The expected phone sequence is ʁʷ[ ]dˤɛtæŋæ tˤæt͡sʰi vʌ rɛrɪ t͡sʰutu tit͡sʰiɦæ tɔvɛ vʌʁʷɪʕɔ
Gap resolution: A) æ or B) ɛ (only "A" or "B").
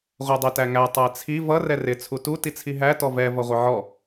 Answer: B